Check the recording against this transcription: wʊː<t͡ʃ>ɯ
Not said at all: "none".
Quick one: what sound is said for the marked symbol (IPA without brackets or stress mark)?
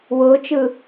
t͡ʃ